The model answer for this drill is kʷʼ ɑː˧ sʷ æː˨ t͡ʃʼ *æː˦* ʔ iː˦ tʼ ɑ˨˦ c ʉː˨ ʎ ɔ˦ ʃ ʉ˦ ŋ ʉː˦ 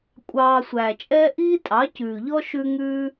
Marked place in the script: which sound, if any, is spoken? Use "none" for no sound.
ɛː˦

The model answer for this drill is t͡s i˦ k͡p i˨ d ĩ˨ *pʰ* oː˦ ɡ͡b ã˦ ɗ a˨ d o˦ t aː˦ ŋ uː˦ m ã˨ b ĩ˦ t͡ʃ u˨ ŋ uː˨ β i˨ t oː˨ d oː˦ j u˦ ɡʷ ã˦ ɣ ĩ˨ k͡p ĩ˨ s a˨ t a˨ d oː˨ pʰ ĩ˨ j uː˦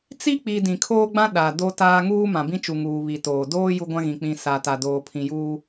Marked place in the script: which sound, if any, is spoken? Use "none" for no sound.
kʰ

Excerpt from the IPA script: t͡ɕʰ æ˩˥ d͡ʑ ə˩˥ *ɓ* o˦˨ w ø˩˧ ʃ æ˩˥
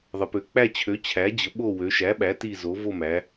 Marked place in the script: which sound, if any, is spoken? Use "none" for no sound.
ɓ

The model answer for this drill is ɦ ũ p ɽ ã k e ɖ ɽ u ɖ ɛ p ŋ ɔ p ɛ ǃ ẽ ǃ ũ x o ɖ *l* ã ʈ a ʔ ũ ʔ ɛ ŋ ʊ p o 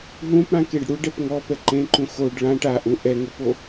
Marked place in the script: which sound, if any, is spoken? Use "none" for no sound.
ɭ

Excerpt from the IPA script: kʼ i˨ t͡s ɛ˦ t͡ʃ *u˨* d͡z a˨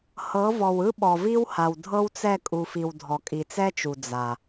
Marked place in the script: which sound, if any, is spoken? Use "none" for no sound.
u˨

